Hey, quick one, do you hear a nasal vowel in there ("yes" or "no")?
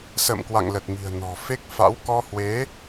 no